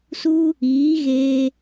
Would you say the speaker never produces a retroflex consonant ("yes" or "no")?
yes